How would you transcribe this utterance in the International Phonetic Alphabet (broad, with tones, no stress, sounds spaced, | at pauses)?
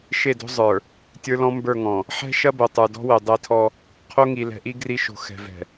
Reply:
ʃ e˦˨ d o̤˦ zˤ ə˞˨ | tʲ ə˞˦ l ɔ̃˦ m b ə˞˦˨ ŋ ɔ̃˨ | ħ ɛ̤˦ ʃ ɐ˦ b o˨ tˤ ə˞˨ d ɔ̤˦ w ɛ˨ dˤ æ˦ tʰ ɔ˦ | qʰ o˦ ŋ i˨ l ɛ̤˨ ʔ i˦ ɡ r i˦ ʃ o̤˨ x ɛ̤˨ v ɛ̤˨